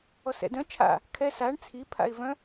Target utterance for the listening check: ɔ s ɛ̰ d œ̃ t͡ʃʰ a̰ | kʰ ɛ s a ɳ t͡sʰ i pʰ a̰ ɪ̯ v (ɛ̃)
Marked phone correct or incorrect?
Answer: incorrect